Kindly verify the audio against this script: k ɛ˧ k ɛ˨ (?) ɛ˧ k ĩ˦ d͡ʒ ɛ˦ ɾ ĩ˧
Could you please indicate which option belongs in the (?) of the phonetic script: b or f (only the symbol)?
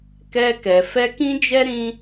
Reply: f